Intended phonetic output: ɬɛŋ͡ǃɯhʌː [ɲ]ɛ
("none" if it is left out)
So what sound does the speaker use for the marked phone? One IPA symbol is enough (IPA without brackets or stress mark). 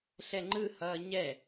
ɲ